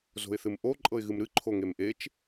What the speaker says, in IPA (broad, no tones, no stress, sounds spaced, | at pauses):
z o̤ ɪ̯ θ ɨ m ʔ o ǃʼ ɤ ɪ̯ ɣ ɨ m ɾ ɨ ǃʰ o ŋ e m ʔ e t͡ʃ